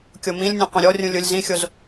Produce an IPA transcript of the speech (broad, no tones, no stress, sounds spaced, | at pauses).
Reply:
kʲ o m ĩ lʲ nʲ ɛ̃ qʷ ĩ ɾʲ ɔ rʲ ũ lʲ ʊ lʲ z ĩ xʲ o z